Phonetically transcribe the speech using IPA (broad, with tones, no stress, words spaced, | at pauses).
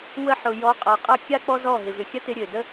wə˧ħʊ˨ jɔ˨˦qʼa˨qʼɐ˦˨ kʲa˦ k͡pɔ˦zɔ˦˨ ɦɪ˨vʏ˨xʲɐ˦tɪ˧ ɾʲø˨də˦